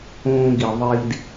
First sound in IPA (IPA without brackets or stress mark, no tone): õː